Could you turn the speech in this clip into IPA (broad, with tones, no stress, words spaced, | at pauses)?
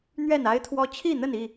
n̪ɥɛ˥˨na˦ɪ̯t̪ʰwɔ˦ t͡ɕʰi˥˨n̪ə˥˨ni˥˨